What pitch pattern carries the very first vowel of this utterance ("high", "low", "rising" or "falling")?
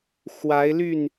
rising